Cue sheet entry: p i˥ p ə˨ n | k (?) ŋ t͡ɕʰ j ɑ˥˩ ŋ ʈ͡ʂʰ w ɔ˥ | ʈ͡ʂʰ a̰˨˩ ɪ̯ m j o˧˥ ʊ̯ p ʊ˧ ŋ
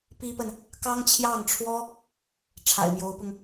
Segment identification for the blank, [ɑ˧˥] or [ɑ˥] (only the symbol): ɑ˥